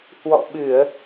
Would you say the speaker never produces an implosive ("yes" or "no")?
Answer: no